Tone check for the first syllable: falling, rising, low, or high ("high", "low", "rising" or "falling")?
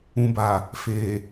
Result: low